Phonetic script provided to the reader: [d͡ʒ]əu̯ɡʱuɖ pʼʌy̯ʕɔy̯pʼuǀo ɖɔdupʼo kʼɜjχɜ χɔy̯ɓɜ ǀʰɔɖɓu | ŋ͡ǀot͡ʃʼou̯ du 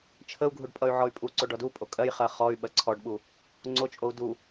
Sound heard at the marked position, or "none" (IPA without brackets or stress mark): t͡ʃʰ